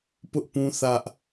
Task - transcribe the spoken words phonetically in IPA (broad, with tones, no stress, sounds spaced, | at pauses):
p ʊ˦ ʔ p ũ˦ θ ä˦ ʔ